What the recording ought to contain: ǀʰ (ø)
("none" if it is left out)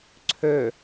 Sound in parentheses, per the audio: ø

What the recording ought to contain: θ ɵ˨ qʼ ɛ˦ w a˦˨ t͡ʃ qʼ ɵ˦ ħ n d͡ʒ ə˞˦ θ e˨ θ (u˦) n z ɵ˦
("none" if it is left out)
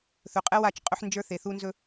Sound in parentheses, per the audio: u˦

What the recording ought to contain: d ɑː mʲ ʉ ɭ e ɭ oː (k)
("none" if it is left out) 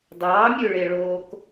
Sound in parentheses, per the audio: k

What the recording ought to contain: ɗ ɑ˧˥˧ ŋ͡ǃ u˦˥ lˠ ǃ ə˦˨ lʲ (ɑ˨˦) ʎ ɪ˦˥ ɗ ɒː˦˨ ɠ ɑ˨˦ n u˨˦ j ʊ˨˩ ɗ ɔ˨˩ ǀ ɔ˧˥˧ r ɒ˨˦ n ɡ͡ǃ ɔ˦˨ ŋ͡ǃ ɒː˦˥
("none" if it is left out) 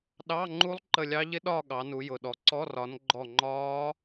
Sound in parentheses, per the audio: ɑ˦˥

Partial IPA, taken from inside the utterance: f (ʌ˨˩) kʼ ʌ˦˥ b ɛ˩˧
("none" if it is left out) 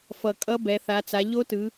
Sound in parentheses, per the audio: ʌ˨˩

